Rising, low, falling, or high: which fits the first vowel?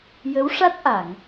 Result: rising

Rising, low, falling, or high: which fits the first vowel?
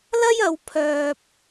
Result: high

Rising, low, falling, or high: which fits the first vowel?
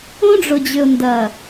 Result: high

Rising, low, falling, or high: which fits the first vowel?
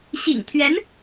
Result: low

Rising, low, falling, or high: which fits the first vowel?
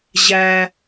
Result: low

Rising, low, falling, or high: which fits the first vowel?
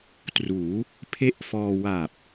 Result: rising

